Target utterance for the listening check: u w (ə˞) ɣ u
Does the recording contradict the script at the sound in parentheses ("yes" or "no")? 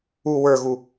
no